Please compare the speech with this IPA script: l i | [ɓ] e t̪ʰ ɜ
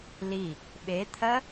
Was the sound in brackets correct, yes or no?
yes